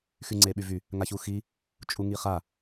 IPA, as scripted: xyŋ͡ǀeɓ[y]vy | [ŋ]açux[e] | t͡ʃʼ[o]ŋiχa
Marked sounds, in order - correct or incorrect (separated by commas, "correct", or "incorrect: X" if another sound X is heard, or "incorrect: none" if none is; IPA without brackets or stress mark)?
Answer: correct, correct, incorrect: i, incorrect: u